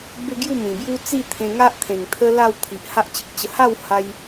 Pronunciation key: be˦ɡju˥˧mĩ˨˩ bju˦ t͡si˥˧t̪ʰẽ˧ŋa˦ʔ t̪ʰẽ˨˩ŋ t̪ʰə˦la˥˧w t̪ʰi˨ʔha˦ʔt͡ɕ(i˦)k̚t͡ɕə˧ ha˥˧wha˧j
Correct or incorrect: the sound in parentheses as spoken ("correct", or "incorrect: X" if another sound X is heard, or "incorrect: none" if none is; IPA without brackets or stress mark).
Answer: incorrect: i˨